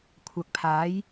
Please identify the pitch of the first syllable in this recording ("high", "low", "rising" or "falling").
low